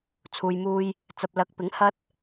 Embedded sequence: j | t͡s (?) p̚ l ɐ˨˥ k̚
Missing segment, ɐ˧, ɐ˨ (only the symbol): ɐ˨